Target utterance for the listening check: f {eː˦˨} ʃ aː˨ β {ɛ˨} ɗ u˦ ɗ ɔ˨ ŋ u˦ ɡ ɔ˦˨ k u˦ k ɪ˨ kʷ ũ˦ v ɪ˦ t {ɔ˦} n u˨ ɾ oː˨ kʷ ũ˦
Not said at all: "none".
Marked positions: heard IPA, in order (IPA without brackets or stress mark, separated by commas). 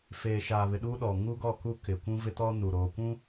eː˨, ɪ˨, ɔ˦